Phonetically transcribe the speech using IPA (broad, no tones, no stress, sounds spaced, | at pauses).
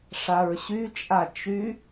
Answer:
ʂ a ɹ ɕ y t͡ʃʼ a t͡ʃ y